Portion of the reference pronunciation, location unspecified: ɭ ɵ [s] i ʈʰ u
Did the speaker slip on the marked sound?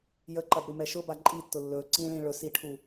no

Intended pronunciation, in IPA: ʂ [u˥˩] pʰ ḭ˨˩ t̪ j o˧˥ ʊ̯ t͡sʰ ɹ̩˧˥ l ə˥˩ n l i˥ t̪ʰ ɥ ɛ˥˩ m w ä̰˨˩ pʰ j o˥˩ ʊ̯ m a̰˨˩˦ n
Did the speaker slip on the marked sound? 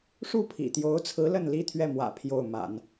no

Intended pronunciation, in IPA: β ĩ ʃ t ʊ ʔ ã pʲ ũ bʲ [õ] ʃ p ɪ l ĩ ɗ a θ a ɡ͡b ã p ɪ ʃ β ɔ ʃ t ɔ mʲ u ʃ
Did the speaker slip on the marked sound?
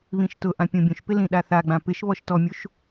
yes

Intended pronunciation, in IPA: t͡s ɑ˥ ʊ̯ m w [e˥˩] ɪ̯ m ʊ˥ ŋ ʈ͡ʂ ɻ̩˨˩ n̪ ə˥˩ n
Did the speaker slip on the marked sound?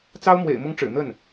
yes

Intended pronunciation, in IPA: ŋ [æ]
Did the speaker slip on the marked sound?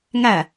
no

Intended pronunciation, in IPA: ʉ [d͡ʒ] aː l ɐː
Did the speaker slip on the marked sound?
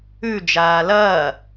no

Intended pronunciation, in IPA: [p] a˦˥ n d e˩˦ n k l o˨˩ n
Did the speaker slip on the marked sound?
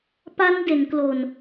no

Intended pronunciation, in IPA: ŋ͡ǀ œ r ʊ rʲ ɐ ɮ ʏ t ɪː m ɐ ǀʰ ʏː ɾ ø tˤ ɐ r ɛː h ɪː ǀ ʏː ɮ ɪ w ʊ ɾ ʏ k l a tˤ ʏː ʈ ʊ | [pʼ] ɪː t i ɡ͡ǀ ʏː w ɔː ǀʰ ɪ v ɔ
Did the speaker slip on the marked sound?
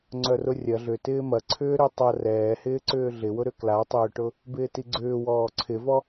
yes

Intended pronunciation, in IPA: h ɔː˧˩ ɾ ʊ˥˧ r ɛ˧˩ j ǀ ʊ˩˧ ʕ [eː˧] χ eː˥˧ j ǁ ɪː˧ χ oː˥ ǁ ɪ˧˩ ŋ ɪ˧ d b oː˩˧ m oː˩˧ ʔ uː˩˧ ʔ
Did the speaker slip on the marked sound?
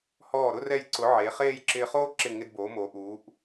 yes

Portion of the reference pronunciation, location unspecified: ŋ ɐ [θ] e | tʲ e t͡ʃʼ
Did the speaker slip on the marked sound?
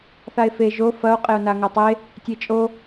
yes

